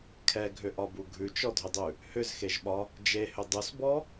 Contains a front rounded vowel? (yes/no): yes